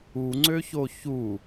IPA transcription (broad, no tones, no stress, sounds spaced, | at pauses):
u ŋ͡ǀ ø ç o ç u